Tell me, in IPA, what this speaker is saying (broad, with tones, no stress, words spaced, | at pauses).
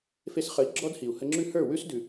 fe˧sχə˨˦i̯ ɡ͡ǁɔ˦dhi˨u̯ hə˧ŋ͡ǁʉ˦ hə˞˦˨wʉ˦s dʉ˨